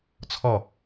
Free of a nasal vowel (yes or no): yes